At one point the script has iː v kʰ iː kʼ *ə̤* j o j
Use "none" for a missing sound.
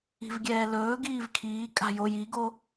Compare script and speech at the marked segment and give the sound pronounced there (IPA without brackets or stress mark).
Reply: a̤